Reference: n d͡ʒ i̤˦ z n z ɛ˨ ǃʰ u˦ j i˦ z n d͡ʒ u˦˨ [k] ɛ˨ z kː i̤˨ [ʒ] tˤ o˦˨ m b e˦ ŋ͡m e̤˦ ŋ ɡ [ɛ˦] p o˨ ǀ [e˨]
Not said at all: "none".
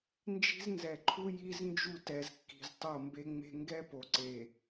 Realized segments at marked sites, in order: t, z, ɛ˦, e˨

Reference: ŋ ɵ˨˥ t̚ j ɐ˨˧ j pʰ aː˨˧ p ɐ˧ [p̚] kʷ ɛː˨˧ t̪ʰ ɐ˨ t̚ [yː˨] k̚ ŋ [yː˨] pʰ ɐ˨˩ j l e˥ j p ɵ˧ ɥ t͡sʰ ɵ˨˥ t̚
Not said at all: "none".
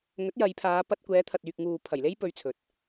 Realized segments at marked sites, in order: t̚, yː˨, uː˨

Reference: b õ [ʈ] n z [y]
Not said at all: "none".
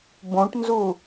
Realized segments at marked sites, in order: ʈ, u

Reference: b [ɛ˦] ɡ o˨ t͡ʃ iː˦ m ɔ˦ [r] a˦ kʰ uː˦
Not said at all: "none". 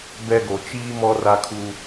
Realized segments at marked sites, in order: ɛ˦, r

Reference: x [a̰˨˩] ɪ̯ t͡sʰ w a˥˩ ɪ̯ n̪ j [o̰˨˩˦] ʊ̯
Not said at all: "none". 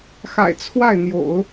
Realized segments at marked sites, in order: a̰˨˩, o̰˨˩˦

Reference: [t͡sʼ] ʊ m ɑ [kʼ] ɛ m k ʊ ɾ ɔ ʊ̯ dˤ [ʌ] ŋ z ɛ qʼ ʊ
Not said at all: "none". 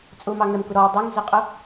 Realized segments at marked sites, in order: t͡sʼ, ŋ, ʌ

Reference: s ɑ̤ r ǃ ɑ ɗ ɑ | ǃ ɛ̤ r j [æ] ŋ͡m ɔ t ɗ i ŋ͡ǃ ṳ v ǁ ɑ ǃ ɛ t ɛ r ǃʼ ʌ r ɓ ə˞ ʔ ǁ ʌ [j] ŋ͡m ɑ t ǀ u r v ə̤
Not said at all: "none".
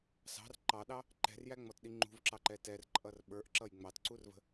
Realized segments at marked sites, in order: æ, j

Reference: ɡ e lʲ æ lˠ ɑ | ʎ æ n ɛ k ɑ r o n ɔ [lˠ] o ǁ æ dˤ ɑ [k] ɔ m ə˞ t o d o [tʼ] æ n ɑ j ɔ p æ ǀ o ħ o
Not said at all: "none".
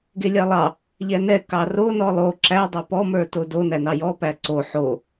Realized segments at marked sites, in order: lˠ, p, n

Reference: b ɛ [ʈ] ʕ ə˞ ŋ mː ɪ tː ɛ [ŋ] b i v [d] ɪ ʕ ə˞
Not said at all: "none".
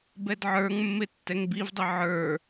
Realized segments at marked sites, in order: d, ŋ, dˤ

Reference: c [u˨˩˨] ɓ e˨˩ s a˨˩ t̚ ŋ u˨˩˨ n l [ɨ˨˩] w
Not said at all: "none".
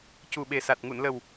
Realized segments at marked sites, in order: u˨˩, ə˨˩

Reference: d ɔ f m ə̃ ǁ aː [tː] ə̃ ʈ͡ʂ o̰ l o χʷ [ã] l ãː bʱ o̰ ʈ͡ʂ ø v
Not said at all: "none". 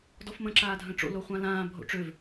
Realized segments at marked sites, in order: dʱ, ã

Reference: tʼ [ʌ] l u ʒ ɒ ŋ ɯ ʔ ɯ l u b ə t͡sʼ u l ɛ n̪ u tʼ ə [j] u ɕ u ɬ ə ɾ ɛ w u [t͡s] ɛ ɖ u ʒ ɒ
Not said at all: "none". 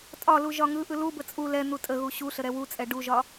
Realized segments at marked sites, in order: ɒ, ɣ, t͡sʼ

